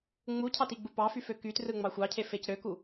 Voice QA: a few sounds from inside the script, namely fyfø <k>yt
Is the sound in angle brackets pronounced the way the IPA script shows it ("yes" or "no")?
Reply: yes